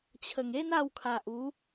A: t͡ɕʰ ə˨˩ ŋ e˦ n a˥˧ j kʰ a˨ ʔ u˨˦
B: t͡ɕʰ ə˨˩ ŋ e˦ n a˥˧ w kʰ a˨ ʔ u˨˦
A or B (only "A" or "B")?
B